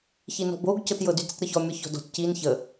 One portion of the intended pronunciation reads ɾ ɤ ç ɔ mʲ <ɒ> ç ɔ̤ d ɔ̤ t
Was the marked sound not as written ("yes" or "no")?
no